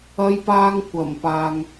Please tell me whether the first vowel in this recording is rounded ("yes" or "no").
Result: no